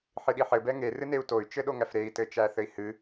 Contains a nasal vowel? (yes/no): no